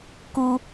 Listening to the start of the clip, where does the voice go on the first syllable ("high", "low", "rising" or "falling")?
high